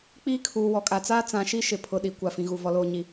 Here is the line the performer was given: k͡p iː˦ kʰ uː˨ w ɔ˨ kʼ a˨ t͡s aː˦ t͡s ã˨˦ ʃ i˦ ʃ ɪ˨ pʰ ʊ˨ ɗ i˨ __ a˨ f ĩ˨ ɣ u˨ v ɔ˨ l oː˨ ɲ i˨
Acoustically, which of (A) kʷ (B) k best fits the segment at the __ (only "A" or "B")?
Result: A